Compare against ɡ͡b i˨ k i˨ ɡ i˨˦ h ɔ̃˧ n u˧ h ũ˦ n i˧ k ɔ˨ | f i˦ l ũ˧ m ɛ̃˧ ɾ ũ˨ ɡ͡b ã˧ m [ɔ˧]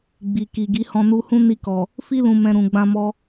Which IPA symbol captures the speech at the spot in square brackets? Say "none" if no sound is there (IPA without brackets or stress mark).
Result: ɔ˧